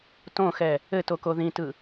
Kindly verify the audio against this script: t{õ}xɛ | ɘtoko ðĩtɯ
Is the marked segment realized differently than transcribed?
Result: no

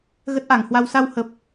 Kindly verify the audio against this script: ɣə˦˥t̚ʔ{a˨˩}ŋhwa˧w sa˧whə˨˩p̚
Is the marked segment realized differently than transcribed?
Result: yes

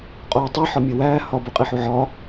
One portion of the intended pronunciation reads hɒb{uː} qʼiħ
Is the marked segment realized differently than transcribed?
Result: yes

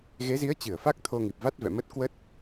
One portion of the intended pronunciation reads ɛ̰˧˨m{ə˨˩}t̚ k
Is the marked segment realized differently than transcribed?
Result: yes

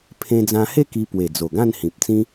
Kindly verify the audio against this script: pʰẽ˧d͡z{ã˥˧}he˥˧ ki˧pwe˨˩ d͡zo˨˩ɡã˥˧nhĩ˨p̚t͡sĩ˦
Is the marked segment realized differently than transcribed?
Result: yes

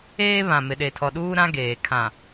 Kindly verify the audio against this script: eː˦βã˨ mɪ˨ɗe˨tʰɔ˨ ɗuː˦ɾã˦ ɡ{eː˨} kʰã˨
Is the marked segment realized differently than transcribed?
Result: no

